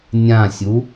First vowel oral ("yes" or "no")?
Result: no